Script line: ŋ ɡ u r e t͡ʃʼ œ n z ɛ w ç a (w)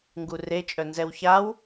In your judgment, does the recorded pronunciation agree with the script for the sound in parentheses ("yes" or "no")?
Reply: yes